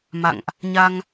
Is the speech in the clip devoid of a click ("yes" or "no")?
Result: yes